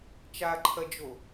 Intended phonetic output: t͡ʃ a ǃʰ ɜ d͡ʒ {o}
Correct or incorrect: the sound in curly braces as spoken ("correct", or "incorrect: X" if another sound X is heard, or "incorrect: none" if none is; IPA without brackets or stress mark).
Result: correct